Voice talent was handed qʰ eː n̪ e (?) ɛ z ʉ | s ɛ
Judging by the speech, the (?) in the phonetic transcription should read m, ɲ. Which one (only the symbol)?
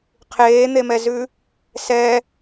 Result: m